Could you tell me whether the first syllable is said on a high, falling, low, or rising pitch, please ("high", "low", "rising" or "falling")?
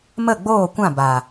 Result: falling